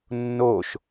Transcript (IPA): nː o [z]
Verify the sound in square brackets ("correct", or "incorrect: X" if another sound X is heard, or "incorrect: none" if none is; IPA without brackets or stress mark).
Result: incorrect: ʃ